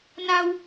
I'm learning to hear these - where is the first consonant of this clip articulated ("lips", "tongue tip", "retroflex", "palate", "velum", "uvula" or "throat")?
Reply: tongue tip